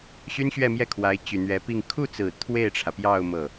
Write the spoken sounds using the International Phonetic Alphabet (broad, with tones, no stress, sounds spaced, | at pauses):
ɕ y˥ n ɕ ɥ ɛ˥˧ m j ɛ˥˩ kʰ w a˧˥ ɪ̯ t͡ɕ y˨˩ n̪ ɥ ɛ˧˥ p i˥˧ ŋ kʰ u˥˩ t͡s ɹ̩˨˩ t̪ʰ w e˥˩ ɪ̯ ʈ͡ʂʰ ä˩ p j ɑ˥˧ ʊ̯ m ɤ˥˩